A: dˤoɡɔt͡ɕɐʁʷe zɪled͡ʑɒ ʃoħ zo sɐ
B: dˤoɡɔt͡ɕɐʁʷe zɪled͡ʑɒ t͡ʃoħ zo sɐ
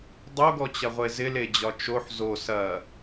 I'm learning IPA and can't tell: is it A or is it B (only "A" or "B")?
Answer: B